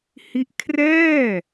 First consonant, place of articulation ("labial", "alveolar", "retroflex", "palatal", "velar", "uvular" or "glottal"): glottal